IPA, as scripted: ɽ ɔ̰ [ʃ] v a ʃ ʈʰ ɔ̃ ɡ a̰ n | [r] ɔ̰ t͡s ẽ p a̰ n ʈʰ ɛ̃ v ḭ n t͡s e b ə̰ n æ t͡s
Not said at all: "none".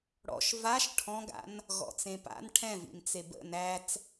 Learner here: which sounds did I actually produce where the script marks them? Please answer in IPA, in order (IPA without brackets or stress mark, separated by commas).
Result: ʃ, ɣ